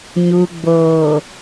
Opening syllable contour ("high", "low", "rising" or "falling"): low